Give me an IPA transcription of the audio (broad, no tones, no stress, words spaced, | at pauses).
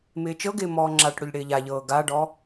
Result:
mɪːt͡ʃɤɡɪː mɔːŋ͡ǁaʈɽɵʎ ɽɪːʎaʎɤː ɡaɖɔ